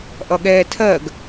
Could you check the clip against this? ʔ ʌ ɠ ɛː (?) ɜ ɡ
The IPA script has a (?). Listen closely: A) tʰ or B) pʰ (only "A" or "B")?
A